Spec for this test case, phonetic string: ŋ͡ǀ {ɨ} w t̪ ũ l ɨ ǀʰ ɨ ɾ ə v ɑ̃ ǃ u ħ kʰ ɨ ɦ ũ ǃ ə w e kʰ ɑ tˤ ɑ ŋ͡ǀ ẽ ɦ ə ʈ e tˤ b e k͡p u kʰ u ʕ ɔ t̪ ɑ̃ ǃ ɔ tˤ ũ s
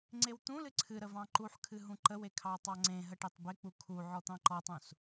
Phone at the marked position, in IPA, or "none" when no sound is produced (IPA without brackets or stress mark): e